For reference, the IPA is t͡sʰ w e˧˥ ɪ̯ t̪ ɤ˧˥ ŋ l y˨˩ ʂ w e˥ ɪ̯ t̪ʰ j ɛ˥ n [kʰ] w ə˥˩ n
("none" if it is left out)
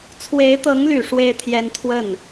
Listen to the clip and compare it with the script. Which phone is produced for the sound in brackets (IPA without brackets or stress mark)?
t̪ʰ